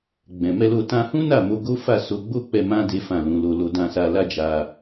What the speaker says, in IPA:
ɡ͡bɛ̃˨mɛ˧lo˧ tã˧hũ˦ na˦˨mo˧ ɡo˦fa˦˨ so˧ɡ͡bo˦k͡pɛ˧ mã˦ de˦fã˦˨lũ˨˦lo˧ lo˨dã˨sa˨la˧ d͡ʒa˧

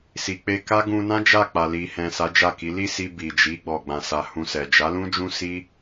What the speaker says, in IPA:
si˨k͡pe˧ka˦ ɡũ˧nã˦ d͡ʒa˦˨k͡pa˨ li˨hɛ̃˨ sa˨˦d͡ʒa˦˨ki˨˦ li˦˨si˧ bi˨d͡ʒi˨˦ ɡ͡bɔ˧ɡ͡bã˧sa˧ hũ˧sɛ˨ d͡ʒa˨˦lũ˦ d͡ʒũ˦si˦

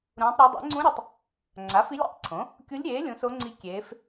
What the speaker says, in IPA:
ɾũː˧˥tˤɾʲɜ˧˥ dˤḛ˩˥ŋ͡ǀũ˧˥ ɾʲe˩˥tˤ | ŋ͡ǀa˩˥fi˧˥lʲḛ˧˥tˤǀʰõ˩˥ | kʲu˧˥lʲɾʲeː˩˥ lʲũ˩˥so˧˥ŋ͡ǀi˧˥ kʲeː˧˥f

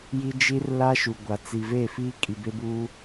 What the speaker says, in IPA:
ji˦ d͡ʒi˦rla˦ʃu˨ ɡʷa˨ t͡si˨ve˦˨ fiː˦kʼi˨be˦buː˦

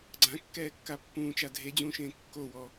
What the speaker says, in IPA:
ɡ͡ǀãkːɛːkːa pːũːt͡ʃa dʱed͡ʑũːʃẽː kːowɔ

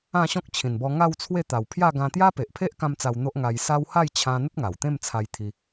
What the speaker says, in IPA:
ã˥˧ɕɔ̃˦k̚t͡ɕʰĩ˨˩nbɔ˧ ŋa˥˧wt͡sʰwe˥˧t̪a˨˩w pʰja˥˧ɡã˧ t̪ja˦pe˨ʔpʰe˦ʔ kã˦mt͡sa˧wn̪o˦ʔ ŋa˧j sa˦w ha˥˧jt͡ɕʰã˧n̪ə˦t̚ ŋa˨˩w t̪ẽ˥˧mt͡sʰa˧jt̪ʰi˧

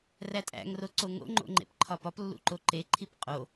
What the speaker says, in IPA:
rætʼæ̰ŋro ǀoŋo̰ ŋ͡ǃo̰ŋ͡ǃḛpǃʰɒpɒp lːṵǃoǃeǃʰip qʼo

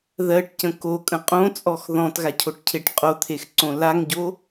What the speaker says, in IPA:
ðɜʈcə̃ kokʼə̃ qʼõt͡sʼɔx ðɔ̃tɣacʰoʈcʰeʈ qʼot̪ʰexǀõ laŋɟo

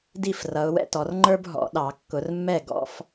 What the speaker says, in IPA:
di˥˩frʌ˨˦ʊ̯wɛ̰˦tɔ˨˦r ŋ͡ǃə˞˦bɦɔ̰˨˩˦ ɗɑ˨˩˦kːʊ˨˦rmːɛ˥˩ ɡɔ̰˦f

